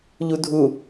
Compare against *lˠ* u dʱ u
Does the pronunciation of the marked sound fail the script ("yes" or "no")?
yes